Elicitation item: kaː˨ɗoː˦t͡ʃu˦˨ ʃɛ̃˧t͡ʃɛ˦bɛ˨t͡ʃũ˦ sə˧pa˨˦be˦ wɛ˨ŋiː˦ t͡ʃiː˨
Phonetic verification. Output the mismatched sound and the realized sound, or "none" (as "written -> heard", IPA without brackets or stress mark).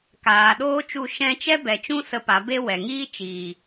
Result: none